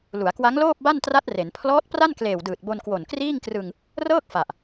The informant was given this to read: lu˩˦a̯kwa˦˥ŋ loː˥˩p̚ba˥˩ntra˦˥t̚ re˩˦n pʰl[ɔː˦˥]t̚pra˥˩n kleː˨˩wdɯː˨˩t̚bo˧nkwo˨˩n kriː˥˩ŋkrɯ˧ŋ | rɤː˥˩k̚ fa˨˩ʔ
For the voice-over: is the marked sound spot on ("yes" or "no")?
yes